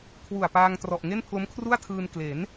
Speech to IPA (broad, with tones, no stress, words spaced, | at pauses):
kʰwu˨˩a̯paː˧ŋtrɔ˨˩ʔ ŋe˥˩npʰlo˦˥mkʰru˥˩a̯tʰɯː˧n kle˩˦n